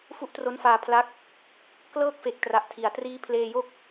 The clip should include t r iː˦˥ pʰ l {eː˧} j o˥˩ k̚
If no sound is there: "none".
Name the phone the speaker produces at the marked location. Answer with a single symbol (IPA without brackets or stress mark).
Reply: eː˧